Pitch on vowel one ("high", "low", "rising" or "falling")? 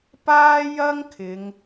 high